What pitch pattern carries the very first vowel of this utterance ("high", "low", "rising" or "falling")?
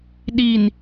low